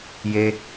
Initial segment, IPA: j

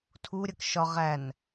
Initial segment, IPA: tʰ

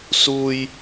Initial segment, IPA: s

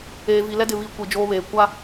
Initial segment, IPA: eː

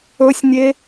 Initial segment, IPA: ɵ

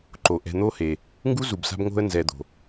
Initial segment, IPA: ǃ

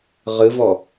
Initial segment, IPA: ʁ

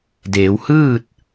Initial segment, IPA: d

